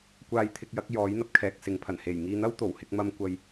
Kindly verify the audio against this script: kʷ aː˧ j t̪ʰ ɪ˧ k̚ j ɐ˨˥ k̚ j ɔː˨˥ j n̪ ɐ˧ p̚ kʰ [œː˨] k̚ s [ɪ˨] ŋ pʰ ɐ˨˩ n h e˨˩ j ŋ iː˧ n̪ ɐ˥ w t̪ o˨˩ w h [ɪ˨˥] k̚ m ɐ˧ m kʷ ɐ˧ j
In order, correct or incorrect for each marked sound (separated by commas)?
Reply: incorrect, correct, incorrect